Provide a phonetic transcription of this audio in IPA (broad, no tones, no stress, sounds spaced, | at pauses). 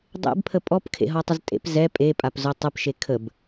dˤ ḛ b pʰ ə pʼ ɔ p kʰ ḛ ɦ ɔ tˤ ə z tʼ ḛ p z ɛ pʼ e pʼ a p z o tˤ ə p ʃ e kʰ ə b